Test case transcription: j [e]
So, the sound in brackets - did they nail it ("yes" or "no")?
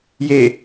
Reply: yes